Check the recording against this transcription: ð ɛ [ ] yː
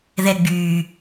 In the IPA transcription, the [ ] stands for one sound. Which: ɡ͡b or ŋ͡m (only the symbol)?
ɡ͡b